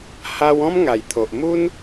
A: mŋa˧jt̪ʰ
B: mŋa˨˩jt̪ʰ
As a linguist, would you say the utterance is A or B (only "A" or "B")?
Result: B